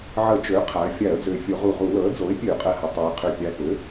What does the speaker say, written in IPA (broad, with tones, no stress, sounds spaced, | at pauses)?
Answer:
ʕ ə˧˩˧ t͡ʃ ø˩˥ qʰ a˩˧ ə̯ fʲ a˧˩˧ ə̯ d͡z ø˨˩ fʲ o˧˩˧ ʁ u˨˩ ʁ u˧˩˧ l ɤ˩˥ ə̯ d͡z o˩˥ ɪ̯ pʲ ø˧˩˧ qʼ ə˨˩ h ə˩˧ tˤ ɤ˩˧ ɪ̯ qʰ ø˨˩ pʲ a˨˩ k ø˩˥